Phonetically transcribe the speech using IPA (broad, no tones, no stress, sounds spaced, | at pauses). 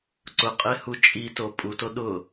ǀ ʊ qʼ e h u t͡ʃʼ i t o pʼ u t o ɗ ʊ